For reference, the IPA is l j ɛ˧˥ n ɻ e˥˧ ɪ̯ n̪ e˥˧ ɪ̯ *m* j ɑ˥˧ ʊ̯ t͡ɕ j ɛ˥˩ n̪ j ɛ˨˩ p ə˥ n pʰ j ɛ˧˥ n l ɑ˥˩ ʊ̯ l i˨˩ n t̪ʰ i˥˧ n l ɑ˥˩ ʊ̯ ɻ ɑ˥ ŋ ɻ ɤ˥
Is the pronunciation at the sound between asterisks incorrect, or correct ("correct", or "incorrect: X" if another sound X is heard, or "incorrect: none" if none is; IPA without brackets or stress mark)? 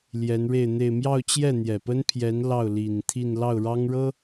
correct